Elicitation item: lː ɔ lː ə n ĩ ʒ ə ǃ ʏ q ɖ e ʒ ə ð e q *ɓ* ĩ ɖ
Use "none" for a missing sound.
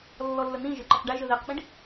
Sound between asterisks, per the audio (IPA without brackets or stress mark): ɓ